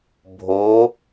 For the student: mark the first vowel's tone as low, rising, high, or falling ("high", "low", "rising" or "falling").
rising